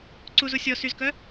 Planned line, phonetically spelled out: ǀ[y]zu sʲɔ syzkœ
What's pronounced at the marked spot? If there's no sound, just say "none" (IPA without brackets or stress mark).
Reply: u